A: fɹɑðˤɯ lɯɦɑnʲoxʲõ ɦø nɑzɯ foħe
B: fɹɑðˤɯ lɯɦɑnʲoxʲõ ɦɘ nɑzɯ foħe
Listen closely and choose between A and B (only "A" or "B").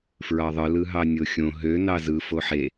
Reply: A